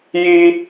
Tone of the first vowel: high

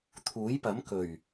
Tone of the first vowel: rising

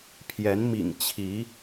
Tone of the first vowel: rising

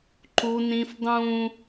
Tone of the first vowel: high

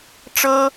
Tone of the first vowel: high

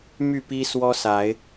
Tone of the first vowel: falling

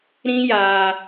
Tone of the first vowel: high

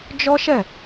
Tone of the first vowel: high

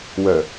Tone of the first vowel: low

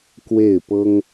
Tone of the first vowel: falling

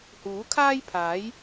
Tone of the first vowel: rising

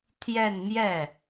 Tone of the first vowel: falling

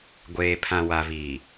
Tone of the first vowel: low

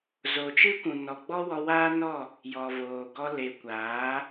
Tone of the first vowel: low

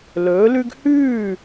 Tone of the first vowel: rising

